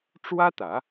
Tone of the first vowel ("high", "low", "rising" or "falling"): high